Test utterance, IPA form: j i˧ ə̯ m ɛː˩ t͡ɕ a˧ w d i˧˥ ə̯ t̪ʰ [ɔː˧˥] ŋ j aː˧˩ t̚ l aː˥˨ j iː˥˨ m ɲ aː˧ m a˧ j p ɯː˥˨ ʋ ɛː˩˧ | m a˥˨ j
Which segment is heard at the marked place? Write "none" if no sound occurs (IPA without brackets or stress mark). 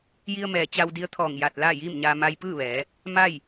ɔː˧˩